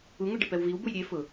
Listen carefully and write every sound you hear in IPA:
u ŋ u ɖ ɪ p ɛ w v i w b u j ɾʲ e f ʊ

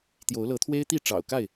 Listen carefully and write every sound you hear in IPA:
t̪ j o˨˦ ʊ̯ l ɤ˨˦ t̪ʰ w e˦ ɪ̯ t̪ i˥˨ ʈ͡ʂ ɑ̰˨˩ ʊ̯ k a˥˨ ɪ̯

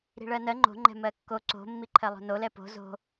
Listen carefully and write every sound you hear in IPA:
ɾ i̤ ɭ ɜ n ɜ ŋ͡ǃ o̤ ŋ͡ǃ ɛ̤ m ɜ kː o ǀ o̤ mː i ǃʰ ɜ lˠ o̤ n o l ɛ p o̤ z o̤

